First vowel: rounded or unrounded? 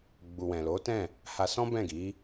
rounded